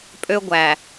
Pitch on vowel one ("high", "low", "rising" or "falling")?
high